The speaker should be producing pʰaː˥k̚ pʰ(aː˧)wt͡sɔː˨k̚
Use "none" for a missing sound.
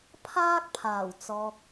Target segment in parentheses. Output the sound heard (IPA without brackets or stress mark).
aː˨˩